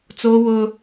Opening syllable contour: high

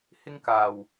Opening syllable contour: high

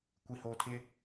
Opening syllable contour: low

